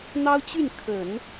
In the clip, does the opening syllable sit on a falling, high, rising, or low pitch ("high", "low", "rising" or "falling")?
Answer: high